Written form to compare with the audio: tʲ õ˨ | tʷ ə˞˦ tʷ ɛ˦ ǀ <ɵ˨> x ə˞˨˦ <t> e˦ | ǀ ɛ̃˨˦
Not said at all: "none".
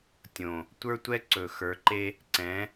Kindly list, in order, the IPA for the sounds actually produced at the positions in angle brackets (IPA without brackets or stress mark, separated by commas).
ɵ˨, ǃ